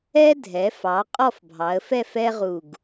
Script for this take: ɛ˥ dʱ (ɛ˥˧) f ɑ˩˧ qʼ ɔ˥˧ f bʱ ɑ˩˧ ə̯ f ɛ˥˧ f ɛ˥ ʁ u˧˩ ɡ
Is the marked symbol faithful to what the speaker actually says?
no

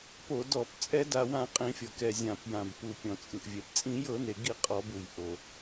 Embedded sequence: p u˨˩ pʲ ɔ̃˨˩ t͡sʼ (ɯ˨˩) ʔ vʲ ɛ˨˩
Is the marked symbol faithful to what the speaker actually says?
yes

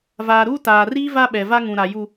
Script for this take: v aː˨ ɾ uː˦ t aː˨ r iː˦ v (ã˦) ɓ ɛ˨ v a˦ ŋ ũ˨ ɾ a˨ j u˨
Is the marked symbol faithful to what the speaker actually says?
no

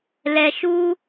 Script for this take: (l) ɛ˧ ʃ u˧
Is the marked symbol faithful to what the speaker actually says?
yes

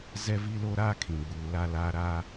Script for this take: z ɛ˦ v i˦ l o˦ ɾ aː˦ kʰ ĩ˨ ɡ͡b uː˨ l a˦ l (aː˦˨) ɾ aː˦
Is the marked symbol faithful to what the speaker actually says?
no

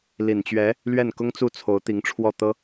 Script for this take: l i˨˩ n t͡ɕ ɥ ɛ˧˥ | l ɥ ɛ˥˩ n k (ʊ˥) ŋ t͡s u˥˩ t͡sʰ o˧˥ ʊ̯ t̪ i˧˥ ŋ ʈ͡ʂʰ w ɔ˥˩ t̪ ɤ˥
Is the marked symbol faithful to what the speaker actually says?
yes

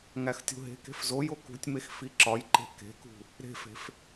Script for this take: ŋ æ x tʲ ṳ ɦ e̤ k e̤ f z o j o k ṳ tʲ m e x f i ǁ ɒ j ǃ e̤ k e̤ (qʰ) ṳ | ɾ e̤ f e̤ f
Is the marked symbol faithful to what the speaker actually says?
no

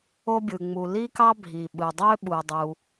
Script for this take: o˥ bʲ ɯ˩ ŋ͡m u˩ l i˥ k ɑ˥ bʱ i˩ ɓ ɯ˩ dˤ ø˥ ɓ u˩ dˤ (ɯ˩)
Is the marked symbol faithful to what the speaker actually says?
no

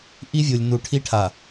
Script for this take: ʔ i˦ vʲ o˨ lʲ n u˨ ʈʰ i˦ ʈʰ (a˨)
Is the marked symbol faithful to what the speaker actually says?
yes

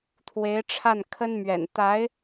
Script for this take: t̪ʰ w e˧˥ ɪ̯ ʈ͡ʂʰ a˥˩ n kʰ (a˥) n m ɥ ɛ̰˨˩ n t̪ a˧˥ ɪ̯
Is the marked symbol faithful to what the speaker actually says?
no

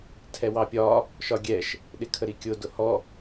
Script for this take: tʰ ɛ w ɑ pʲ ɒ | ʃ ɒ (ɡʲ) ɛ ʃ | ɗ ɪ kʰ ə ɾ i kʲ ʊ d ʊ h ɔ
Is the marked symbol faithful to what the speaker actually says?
yes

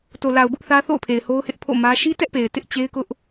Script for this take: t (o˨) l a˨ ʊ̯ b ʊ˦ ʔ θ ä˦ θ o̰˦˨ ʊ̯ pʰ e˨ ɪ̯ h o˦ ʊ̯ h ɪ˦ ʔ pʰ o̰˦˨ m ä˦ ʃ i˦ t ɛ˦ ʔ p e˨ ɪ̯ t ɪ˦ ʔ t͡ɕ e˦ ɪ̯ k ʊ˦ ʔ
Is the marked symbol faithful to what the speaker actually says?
yes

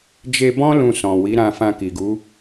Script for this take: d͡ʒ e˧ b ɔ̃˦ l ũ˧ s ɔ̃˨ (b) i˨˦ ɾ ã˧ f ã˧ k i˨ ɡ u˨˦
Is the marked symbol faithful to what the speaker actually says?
no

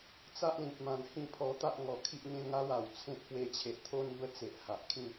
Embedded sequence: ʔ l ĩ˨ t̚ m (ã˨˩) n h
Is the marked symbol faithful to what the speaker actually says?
yes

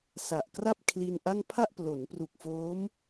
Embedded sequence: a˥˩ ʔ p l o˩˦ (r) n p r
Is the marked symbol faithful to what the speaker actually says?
no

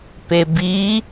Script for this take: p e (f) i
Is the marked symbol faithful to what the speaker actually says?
no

